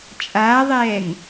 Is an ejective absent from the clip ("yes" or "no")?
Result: no